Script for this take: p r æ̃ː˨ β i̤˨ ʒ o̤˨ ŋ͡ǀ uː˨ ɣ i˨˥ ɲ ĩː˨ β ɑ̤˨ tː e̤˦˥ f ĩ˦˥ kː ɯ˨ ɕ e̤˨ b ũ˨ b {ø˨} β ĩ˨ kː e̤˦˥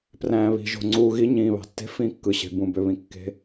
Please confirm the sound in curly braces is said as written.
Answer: yes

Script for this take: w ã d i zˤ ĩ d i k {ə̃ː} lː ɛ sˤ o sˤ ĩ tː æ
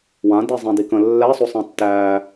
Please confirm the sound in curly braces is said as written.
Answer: no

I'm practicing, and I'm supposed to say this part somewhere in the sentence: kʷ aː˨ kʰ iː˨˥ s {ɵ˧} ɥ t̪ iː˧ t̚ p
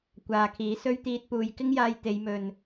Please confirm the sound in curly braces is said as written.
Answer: no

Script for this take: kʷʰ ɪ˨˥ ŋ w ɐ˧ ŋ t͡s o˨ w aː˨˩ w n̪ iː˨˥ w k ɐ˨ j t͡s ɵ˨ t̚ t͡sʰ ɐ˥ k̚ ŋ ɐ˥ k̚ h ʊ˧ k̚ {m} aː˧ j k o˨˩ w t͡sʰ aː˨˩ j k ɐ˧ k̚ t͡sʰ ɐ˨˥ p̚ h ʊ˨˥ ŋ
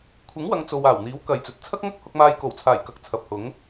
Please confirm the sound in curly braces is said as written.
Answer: yes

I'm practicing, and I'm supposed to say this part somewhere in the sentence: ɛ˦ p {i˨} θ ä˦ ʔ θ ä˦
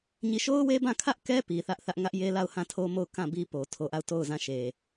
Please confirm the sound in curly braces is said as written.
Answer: yes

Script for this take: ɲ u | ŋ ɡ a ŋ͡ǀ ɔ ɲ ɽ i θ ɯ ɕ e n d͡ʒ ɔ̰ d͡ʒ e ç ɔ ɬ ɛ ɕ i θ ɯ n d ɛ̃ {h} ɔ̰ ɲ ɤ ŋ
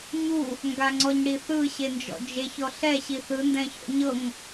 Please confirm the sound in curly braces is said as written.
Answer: no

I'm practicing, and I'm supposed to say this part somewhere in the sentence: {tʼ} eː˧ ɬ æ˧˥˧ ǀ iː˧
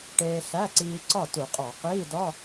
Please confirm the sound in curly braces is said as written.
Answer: no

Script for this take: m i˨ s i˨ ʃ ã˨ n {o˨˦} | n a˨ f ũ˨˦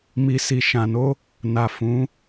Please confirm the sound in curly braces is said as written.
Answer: no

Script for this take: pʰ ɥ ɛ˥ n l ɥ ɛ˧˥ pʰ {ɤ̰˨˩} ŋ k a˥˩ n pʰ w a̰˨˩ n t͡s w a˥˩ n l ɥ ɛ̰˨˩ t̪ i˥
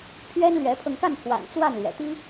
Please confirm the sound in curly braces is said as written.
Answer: no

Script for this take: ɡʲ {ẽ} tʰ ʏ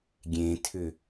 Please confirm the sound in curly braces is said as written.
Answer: yes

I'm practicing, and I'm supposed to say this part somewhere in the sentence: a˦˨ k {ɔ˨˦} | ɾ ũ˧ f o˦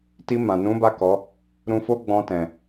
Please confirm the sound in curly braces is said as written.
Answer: yes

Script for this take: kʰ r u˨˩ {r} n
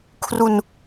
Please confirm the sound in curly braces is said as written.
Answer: no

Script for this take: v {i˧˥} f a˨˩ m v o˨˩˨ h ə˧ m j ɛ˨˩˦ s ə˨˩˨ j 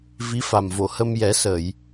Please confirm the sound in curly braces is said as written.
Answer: yes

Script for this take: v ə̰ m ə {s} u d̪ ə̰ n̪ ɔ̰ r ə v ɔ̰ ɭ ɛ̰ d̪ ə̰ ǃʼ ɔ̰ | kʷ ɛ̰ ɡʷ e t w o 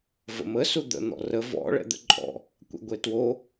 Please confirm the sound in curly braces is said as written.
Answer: yes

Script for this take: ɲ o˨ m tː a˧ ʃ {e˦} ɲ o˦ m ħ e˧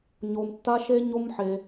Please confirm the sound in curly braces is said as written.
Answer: yes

